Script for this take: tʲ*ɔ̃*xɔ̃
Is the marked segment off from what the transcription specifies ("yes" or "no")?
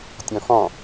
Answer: no